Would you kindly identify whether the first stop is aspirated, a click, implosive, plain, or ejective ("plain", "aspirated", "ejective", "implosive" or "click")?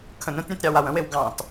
aspirated